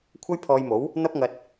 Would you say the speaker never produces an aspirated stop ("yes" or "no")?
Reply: no